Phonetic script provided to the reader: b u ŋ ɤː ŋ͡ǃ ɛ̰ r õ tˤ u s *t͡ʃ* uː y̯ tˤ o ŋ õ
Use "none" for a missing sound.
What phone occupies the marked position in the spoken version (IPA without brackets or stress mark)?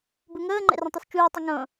t͡ʃ